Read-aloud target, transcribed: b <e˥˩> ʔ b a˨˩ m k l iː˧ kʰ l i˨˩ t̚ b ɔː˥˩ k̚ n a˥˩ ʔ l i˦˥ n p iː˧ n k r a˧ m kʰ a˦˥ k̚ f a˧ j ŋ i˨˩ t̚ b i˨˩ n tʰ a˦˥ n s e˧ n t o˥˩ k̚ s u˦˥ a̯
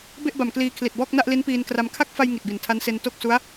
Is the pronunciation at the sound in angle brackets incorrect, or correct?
correct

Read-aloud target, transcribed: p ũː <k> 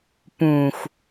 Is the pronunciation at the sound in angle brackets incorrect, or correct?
incorrect: x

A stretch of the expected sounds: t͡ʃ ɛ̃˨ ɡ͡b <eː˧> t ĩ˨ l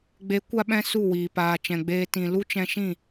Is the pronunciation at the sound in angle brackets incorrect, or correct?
correct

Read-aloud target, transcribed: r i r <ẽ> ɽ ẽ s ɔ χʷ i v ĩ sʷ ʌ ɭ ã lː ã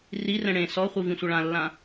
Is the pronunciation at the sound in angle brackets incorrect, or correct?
incorrect: ɛ̃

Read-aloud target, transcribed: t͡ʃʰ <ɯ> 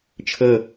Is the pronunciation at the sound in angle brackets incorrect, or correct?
incorrect: ɤ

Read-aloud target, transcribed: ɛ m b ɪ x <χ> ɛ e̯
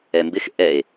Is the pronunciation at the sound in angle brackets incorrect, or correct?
incorrect: ʔ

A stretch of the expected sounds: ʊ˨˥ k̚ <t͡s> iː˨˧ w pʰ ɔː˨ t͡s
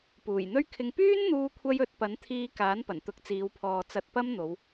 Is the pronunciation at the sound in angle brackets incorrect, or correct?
correct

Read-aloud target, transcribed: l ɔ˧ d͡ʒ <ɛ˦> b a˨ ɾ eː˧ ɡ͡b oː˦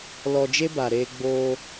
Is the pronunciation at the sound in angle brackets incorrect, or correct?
incorrect: e˦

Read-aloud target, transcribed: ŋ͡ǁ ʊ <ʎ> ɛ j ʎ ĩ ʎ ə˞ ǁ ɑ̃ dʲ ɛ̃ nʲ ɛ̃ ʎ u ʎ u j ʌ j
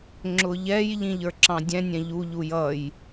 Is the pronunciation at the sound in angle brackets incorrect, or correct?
correct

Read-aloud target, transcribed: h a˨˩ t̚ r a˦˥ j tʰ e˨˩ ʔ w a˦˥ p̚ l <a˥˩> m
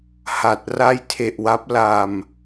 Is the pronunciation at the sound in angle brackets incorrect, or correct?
incorrect: a˧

